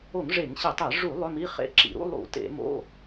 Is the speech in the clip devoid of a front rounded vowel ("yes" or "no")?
no